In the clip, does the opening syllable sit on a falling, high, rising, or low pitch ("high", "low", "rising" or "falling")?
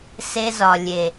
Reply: high